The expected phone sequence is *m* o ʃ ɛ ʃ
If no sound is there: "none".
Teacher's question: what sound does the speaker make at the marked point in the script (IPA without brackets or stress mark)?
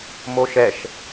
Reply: m